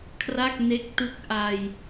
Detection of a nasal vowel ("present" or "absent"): absent